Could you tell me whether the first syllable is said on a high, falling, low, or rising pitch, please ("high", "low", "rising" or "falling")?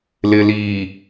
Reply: low